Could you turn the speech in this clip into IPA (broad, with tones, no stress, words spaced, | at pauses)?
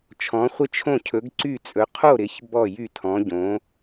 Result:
t͡ʃʰɔ̃˨˥χʷɪ˥˩t͡ʃʰõ˥˩ cʰɵ˨˥ɡǀy˥˩t͡sʼɵ˨˥ qʰo˥˩ɾɪ˨˥ç bɔ˥˩jy˥˩tʰɔ̃˨˥ ɟõ˨˥